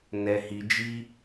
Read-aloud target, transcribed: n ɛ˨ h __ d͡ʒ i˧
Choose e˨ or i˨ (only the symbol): i˨